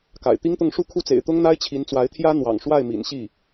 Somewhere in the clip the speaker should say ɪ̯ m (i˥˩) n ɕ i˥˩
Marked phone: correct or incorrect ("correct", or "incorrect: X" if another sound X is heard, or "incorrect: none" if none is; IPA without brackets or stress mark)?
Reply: incorrect: ḭ˨˩